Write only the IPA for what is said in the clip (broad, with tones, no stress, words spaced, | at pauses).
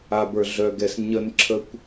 a˨bə˞˨ɮœ˨ɡɛ˨s ɲə˧nǁʰə˧kʷ